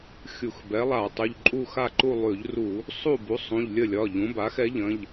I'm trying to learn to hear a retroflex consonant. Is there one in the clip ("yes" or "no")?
no